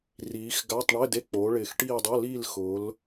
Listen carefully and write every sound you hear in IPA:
r iː˩˧ x ɡ a˧˥˧ tˤ ɳ ɪ˧˥˧ d e˧˥˧ k͡p oː˩˧ ɭ ɪː˨˩ x ʈ iː˦˨ dˤ o˧˥˧ l iː˦˨ l x ʊː˩˧ l

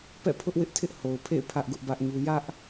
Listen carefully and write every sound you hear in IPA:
p ɛ̰˦˨ pʰ ʊ˦ ʔ w ɪ˦ ʔ tʰ ɪ˦ ʔ h o˨ ʊ̯ pʰ ḛ˦˨ ɪ̯ pʰ ä˦ ʔ ɡ ʊ˦ ʔ b ä˦ ʔ ɲ u˦ j ä˦ ʔ

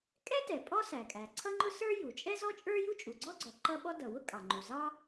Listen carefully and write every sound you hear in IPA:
kʼ ɛ˥ t ɛ˩ pʼ ɔ˥ s æ˩ kʼ æ˩ ǀʰ ʌ˥ ŋ͡ǃ ʊ˥ s ə˞˥ j u˩ t͡ʃʼ ɛ˥ z ɔ˥ t͡ʃʼ ə˞˥ j u˥ t͡ʃʼ u˩ ɡ͡ǀ ɔ˥ ɡ͡ǀ ɔ˩ ǃ ʌ˥ ɓ ɔ˥ d ʌ˩ w ʊ˥ kʼ ɑ˩ ŋ͡ǃ u˩ z ɑ˥

